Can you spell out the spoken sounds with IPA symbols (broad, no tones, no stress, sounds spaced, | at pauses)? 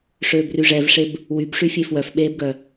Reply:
ʂ øː b r y ʐ ɛ v ʂ e b | w y b ʂ y fʲ e f w œ f ɓ eː b ɡ œ